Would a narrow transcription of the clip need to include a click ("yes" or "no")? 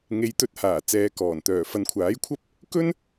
no